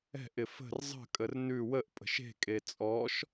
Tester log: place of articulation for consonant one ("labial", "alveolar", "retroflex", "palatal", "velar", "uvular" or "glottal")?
glottal